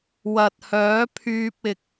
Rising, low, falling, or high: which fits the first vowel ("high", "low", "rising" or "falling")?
low